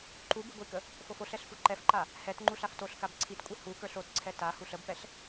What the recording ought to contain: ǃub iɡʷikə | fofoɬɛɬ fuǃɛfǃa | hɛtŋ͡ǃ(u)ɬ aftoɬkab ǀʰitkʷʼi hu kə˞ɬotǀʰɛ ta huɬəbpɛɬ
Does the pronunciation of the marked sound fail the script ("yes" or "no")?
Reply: no